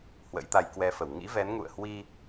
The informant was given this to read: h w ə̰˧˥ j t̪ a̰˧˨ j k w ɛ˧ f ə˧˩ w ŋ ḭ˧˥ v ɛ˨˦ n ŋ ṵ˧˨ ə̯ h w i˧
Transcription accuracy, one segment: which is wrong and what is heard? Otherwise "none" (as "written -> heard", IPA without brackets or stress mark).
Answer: a̰˧˨ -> a˧